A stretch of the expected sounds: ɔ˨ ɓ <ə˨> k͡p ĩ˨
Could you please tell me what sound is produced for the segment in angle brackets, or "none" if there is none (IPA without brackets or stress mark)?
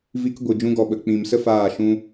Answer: ə˨